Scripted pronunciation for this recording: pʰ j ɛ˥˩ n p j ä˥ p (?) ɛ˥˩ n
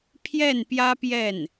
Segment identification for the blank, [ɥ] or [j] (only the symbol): j